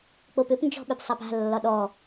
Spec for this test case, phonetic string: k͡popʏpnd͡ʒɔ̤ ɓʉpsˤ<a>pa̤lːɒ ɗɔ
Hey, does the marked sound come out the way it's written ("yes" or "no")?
yes